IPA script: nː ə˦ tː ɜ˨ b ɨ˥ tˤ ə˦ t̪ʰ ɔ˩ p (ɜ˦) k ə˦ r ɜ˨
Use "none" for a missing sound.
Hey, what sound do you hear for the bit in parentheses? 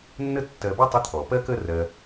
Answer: ɜ˦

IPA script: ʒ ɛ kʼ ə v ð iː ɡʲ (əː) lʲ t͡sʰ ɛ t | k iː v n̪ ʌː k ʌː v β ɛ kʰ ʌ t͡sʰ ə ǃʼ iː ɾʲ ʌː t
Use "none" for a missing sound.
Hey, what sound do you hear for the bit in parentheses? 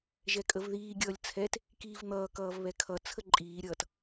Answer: ʌː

